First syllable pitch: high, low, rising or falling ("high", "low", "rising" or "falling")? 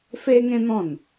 high